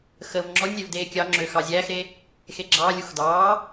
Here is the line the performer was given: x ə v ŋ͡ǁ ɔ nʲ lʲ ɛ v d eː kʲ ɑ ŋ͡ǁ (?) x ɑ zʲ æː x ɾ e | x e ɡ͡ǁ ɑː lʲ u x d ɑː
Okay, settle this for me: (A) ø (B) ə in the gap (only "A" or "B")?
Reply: A